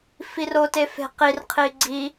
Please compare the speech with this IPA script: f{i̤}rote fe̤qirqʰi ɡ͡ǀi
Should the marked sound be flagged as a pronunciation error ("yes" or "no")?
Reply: yes